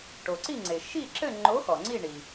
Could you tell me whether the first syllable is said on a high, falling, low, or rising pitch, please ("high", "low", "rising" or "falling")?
low